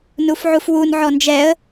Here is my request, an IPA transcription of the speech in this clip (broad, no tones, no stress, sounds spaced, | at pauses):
n u f ʕ u f w u n ʕ ɔ n d͡ʒ ɛ ə̯